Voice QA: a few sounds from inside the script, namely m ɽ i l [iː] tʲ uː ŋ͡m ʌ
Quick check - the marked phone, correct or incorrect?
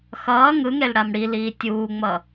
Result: correct